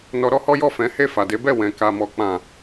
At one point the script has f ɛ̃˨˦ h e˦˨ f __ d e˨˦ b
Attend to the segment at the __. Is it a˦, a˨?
a˨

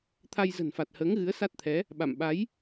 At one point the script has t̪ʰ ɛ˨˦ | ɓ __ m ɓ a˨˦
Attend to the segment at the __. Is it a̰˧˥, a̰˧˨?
a̰˧˨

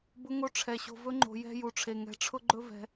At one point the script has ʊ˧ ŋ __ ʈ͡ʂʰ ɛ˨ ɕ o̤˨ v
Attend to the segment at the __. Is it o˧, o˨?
o˧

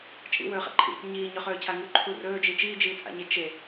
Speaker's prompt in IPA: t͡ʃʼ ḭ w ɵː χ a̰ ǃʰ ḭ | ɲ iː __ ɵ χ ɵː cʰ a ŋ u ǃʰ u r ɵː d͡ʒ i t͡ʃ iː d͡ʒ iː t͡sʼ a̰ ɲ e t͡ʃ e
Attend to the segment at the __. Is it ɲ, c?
ɲ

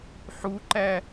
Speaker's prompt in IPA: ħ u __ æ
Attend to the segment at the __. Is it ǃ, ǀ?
ǃ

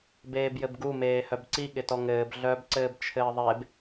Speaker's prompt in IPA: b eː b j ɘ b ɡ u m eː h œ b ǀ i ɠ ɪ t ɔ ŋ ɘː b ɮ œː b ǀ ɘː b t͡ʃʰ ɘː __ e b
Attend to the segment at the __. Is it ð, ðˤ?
ðˤ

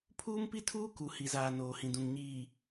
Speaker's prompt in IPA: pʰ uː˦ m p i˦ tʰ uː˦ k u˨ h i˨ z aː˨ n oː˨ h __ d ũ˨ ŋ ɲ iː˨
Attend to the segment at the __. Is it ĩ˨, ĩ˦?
ĩ˨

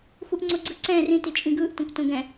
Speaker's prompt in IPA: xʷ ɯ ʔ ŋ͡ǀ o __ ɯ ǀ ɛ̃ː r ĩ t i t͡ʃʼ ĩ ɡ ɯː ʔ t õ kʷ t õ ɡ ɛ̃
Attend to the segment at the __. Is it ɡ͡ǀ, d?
ɡ͡ǀ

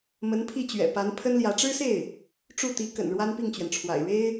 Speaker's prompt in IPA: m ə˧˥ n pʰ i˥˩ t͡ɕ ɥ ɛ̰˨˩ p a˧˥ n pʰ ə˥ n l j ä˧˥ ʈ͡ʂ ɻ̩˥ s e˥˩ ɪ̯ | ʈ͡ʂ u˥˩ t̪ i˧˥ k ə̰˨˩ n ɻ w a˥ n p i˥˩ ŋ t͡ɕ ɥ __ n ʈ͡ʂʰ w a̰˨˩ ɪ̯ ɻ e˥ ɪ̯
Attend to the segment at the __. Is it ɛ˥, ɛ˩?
ɛ˩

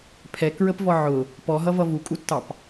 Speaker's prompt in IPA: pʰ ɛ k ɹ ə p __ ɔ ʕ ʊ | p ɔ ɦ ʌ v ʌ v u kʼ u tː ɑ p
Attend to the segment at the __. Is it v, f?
v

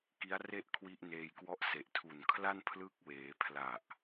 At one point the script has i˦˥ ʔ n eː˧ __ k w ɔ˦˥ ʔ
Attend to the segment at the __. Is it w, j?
j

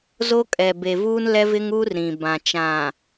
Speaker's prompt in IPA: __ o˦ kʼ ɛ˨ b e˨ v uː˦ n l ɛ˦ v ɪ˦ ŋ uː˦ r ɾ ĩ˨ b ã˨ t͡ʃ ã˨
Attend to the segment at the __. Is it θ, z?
z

